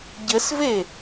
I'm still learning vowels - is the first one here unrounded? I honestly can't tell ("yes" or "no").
yes